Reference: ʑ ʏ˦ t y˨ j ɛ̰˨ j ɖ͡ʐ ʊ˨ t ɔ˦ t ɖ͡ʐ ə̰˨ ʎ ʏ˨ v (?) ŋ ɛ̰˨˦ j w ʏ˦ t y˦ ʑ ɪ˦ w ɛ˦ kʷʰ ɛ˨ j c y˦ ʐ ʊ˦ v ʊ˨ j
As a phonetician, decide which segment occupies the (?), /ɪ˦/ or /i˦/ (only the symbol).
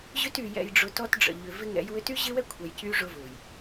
ɪ˦